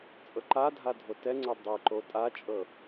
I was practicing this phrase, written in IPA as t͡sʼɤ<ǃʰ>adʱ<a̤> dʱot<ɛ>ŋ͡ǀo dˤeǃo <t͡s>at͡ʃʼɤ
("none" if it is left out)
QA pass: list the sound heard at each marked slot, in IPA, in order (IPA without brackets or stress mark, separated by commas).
ǃ, a, ɛ, tʼ